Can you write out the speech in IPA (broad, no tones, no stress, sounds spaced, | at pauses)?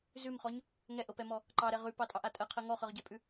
z ʉ m χ ɔ ɲ | ŋ ɛ ʔ ɤ p ɛ m ɔ | ǃ ɑ ɾ ɛ ʁ ʉ p ɑ tʼ ɑ ʔ a tʼ ɜ qʰ ɜ ŋ ɔ χ ɤ ʁ ɟ ɛ pʼ ʉ